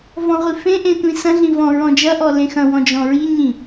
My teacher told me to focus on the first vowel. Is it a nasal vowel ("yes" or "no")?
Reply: yes